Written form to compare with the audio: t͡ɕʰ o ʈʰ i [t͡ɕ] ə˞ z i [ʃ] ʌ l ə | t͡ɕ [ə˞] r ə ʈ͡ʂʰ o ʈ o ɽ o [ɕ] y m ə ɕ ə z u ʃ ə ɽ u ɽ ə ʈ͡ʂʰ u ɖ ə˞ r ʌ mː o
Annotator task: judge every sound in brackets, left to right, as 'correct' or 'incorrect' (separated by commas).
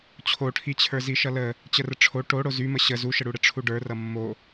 incorrect, correct, incorrect, incorrect